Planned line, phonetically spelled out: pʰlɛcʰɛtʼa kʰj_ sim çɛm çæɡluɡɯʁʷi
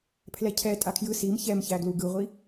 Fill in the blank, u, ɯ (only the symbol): ɯ